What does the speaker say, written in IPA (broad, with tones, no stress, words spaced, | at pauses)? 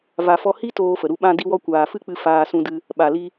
va˨fɔ˧ hi˦ toː˦fə˨ɾu˦ ɓã˧ di˧wɔ˧kʷaː˨ fɨ˦k͡pɨ˧ faː˧sũ˧dɨ˧ | ɓa˨li˧